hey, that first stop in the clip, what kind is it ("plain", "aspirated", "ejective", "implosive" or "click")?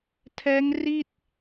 aspirated